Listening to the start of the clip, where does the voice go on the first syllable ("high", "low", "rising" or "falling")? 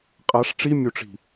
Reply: rising